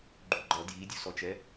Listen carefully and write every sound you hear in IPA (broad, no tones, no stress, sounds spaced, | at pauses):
ɡ͡ǃ u ɡ͡ǃ ʌ d j i dʲ u s ɔ t͡ʃ ɛ